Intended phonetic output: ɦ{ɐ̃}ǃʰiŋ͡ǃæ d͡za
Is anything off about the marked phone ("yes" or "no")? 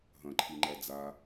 no